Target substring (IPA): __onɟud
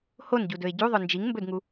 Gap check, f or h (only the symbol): h